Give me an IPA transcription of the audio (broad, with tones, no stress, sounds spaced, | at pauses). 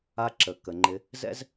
a˧ ǁ ə˨ k ə˨ ŋ͡ǃ ɪ˧ | z ɛ̰˦ z